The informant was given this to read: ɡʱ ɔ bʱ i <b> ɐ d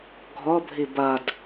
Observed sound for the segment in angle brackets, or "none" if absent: b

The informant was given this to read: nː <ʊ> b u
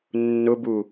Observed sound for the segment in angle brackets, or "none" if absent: ʊ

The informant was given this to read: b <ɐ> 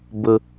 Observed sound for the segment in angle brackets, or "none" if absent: ə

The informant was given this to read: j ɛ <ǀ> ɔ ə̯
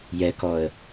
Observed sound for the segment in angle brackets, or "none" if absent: k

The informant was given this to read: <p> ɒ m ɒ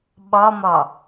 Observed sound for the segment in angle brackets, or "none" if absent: ɓ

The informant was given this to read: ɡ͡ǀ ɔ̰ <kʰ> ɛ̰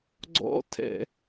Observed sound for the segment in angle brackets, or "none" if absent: tʰ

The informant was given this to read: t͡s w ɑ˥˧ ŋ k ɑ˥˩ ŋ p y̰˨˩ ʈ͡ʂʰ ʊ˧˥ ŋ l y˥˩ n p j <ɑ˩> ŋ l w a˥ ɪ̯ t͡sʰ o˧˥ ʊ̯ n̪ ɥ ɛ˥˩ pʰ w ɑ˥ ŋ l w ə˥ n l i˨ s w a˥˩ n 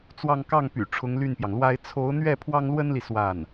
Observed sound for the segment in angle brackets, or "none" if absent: ɑ˩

